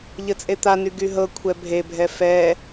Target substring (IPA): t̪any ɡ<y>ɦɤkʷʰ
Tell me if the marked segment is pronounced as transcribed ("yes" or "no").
yes